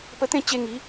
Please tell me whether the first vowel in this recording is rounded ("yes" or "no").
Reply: no